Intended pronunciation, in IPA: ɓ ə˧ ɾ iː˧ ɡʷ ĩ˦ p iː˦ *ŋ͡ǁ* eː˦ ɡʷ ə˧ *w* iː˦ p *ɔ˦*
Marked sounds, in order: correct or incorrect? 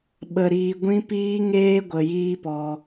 incorrect: ŋ, incorrect: j, incorrect: ɔ˧

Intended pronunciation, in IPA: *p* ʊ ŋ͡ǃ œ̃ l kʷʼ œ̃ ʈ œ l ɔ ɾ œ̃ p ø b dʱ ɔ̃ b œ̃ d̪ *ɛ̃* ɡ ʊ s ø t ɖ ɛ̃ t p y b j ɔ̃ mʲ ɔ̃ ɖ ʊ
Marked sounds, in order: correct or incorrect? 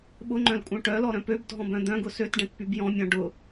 incorrect: ɓ, incorrect: œ̃

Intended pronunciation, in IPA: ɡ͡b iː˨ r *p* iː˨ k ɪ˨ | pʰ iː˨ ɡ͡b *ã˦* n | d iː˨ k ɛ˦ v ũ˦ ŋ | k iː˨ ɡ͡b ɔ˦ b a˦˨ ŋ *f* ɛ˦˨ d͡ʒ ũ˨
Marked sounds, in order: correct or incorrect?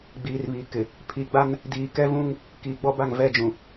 incorrect: β, incorrect: a˦, incorrect: v

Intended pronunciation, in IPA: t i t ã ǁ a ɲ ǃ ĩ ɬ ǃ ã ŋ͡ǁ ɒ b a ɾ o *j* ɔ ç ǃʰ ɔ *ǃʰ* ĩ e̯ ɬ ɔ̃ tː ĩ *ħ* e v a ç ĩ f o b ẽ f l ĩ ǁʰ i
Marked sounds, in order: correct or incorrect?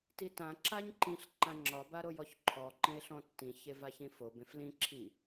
correct, incorrect: ǃ, incorrect: ç

